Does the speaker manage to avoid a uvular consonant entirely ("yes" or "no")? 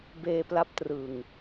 yes